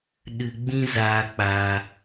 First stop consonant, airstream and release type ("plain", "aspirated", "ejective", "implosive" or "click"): implosive